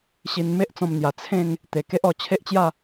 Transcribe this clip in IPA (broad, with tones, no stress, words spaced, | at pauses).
ɕi˧nme˦ʔt͡sɔ̃˧mn̪ja˨˩ t͡sʰẽ˥˧ŋ | t̪e˨˩ke˦ʔɔ˧ t͡ɕʰe˦ʔt͡ɕja˥˧